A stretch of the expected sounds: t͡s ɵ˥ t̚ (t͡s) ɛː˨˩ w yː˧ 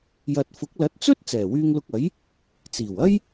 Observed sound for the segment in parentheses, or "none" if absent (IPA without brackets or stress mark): t͡s